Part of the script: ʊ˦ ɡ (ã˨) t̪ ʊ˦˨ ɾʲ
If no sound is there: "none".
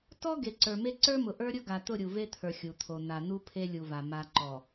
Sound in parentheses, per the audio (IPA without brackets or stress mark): a˨